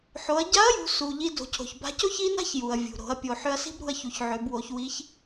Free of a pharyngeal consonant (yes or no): no